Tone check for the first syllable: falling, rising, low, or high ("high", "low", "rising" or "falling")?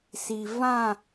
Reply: low